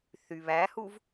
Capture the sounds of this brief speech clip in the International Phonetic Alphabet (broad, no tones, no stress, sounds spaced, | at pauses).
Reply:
θ y β æ h u v